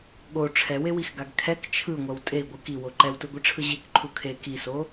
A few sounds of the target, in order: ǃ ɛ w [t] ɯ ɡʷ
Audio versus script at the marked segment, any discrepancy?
no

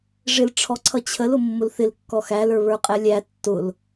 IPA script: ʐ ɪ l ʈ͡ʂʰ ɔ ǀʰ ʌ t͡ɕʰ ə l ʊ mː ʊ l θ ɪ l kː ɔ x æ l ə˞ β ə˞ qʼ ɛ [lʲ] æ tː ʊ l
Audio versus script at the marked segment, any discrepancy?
no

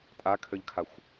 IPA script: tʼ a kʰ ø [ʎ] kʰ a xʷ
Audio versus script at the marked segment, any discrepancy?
no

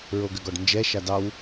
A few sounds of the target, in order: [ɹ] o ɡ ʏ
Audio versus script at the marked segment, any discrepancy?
no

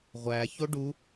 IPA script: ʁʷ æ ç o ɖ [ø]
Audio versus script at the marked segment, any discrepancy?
yes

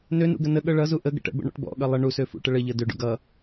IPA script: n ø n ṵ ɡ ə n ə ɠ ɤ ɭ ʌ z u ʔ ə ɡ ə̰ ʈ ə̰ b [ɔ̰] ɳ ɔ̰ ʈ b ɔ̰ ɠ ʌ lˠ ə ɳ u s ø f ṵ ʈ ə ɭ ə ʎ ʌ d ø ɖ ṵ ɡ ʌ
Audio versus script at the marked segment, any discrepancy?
yes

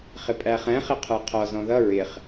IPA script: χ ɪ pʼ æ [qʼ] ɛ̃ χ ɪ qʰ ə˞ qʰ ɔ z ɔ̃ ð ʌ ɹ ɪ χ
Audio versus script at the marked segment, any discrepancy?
yes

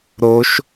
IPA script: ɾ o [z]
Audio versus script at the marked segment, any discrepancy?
yes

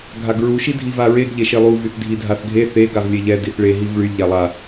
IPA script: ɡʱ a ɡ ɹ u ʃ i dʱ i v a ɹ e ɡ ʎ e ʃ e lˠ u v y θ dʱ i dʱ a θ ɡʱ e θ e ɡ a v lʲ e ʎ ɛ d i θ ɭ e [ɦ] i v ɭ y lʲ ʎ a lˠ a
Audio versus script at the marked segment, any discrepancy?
no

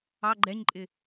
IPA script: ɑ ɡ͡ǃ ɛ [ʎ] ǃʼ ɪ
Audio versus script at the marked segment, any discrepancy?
yes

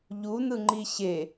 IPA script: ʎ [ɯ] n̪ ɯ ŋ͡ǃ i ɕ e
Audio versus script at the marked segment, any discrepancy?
yes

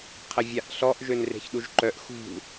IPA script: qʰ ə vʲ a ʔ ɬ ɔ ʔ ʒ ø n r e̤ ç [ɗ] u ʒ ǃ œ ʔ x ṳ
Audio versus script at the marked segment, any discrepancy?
no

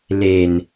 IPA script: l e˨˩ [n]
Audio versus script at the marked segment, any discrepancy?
no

